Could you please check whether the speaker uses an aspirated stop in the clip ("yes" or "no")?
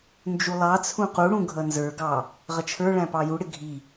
yes